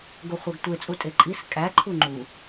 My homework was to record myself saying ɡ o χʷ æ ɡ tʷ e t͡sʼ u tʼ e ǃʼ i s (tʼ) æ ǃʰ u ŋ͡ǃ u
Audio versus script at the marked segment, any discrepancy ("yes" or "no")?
yes